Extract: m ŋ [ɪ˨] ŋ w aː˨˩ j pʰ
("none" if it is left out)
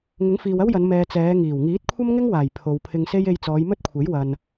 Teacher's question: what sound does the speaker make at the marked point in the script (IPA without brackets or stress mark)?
ɪ˥